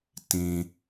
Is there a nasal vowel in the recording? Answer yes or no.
yes